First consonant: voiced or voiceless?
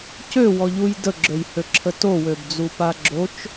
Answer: voiceless